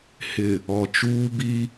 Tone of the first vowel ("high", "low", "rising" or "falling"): low